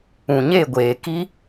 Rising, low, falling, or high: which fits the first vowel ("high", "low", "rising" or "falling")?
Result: low